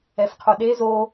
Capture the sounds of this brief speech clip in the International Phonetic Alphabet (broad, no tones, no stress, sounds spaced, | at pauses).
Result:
ɛ f qʰ o ɗ e z o